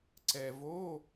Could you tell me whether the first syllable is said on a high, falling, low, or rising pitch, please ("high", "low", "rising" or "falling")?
low